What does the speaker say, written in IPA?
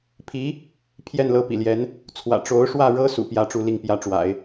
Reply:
pʰ i˧˥ | pʰ j ɛ˥˩ n l ɤ˥ p ḭ˨˩ l j ɛ˧˥ n | t͡sʰ w ä̰˨˩ ʈ͡ʂ o˧˥ ʊ̯ ʂ w ä˥˩ ɻ ɤ˥ s ṵ˨˩ p j ä˥ ʈ͡ʂ u˥˧ l i˥˩ ŋ p j ä˥ ʈ͡ʂ w a̰˨˩˦ ɪ̯

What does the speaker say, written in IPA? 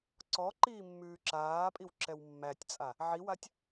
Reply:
ǀ ɔ ǃ iː mː ʉː ǁ aː pʼ i w ǁ ɛ w mː æ tʲ t͡sʼ a | ʕ i w a tʲ

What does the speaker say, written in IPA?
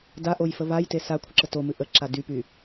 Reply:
d a ʔ o j f ə β a j t e s a kʷʰ ə ǁ ə t o m ɨ ʔ ə ǁ a d y p y

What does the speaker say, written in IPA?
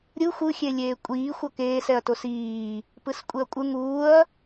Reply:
ɾʲ ɯ xʷ ɯ xʲ e lʲ eː kʷʼ iː xʷ ʌ k eː s ɛ ɐ̯ t o s iː | p ɯ s kʷʼ e ɐ̯ kʷʼ ɯ ŋ uː ɐ̯

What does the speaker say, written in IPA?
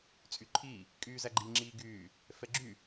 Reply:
t͡sʼ y ǃʰ iː | kʼ yː z æ ɡ͡ǃ i ŋ͡ǁ iː ɡ yː | f ɛ ɡ͡ǁ y

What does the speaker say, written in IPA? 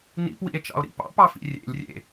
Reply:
n ḭ p w ḭ e̯ t͡ʃ ɑ̰ o̯ ɾ ḭ p ɑ̰ p ɑ f ḭ rʲ ḛ lʲ rʲ ḛ

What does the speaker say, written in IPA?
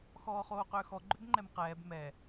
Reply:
x ɔː χ oː q ʏː x ɔ ɡ͡ǃ ʏ b ŋ͡ǃ ɛ m q ɛː b m ɛ

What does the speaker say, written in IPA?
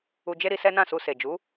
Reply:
u˧ d͡ʒ e˦ ɾ i˧ s ɛ˦ n ã˦˨ s u˧ s e˨ d͡ʒ u˨˦

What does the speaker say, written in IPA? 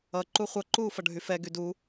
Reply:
ʌ ǃ u χʷ ʌ ǃ uː f ʌ ɖʱ y f ɛ ɡ y d u

